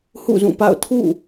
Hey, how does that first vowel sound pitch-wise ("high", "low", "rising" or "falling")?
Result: falling